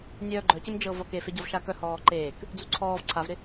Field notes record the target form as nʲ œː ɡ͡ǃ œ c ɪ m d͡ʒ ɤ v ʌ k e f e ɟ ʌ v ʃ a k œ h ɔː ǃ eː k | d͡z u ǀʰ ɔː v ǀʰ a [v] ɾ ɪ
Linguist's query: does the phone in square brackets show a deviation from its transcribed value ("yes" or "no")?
no